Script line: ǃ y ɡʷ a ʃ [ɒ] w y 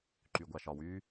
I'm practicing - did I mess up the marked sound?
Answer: no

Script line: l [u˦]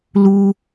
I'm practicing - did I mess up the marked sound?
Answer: no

